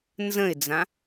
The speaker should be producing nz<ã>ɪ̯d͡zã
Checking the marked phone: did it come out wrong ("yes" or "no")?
yes